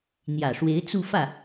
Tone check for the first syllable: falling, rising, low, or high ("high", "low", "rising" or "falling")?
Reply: low